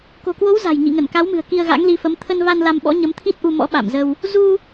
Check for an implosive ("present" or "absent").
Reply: present